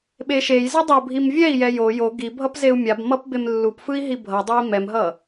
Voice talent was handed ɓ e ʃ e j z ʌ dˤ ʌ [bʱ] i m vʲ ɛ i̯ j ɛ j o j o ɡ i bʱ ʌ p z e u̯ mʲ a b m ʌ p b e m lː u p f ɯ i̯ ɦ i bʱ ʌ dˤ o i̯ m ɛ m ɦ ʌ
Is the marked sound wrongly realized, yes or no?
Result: no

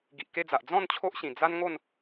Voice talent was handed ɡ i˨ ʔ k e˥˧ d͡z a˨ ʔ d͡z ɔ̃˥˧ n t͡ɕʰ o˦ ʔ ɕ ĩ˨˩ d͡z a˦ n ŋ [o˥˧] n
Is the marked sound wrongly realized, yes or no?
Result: no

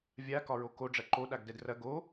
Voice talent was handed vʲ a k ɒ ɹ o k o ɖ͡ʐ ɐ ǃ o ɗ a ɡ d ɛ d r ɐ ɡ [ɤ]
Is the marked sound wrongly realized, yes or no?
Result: yes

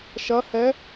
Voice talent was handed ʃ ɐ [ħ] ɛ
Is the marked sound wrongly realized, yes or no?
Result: yes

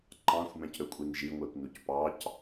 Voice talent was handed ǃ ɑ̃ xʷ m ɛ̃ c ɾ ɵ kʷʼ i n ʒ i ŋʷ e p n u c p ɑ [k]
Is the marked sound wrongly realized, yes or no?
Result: yes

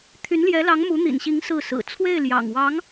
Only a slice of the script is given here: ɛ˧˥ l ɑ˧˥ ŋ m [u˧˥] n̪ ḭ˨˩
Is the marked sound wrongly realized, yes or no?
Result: no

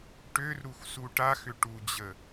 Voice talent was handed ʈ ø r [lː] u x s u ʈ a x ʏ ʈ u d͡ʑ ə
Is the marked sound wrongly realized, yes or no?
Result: yes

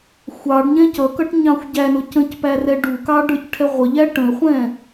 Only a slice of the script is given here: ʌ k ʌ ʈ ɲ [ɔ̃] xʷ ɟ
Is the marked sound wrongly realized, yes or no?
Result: yes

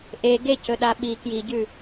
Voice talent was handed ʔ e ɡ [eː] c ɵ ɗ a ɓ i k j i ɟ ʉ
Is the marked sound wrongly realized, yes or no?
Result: yes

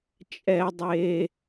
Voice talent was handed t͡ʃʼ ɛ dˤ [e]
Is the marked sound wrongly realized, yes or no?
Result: no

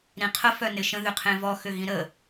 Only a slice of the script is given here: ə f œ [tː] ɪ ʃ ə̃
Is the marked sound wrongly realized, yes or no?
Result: yes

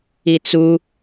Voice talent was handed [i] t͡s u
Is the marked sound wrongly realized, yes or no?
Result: no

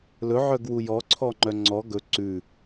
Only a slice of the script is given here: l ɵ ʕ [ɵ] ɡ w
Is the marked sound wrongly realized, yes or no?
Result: yes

